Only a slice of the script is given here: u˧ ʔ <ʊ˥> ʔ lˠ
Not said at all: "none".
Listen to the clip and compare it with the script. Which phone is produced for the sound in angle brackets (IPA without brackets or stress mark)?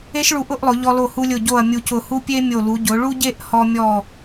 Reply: ʊ˥˧